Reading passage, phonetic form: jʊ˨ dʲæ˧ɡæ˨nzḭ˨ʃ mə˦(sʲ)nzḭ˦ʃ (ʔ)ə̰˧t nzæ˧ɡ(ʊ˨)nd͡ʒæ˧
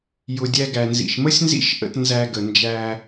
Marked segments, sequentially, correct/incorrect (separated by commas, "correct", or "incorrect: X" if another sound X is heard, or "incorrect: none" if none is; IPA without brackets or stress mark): correct, correct, incorrect: ə˨